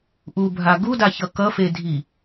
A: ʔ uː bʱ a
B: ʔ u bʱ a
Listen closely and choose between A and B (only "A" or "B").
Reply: B